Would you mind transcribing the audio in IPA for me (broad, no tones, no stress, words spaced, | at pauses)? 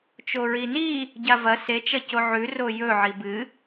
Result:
t͡ʃoɹini | ɟavɐ se t͡ʃɐcoʕʉ rojɵ ʕibɨ